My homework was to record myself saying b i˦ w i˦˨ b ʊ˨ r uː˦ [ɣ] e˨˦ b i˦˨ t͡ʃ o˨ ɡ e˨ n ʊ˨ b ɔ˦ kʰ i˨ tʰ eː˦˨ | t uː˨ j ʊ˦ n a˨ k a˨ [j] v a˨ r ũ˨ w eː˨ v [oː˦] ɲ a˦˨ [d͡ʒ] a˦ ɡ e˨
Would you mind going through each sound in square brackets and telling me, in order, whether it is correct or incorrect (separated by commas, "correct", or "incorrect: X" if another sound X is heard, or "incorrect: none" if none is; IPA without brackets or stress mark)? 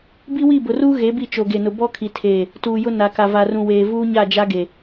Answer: correct, incorrect: none, incorrect: uː˦, correct